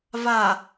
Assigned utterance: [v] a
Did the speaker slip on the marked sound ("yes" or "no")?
no